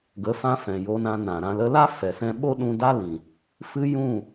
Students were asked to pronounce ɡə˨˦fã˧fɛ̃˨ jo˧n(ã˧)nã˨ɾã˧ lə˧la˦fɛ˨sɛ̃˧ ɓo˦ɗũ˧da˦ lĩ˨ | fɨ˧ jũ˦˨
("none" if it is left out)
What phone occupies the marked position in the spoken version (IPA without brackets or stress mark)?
ã˧